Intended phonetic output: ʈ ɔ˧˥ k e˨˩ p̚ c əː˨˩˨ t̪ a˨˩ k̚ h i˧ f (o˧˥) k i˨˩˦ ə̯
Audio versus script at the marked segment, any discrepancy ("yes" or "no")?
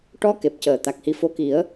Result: no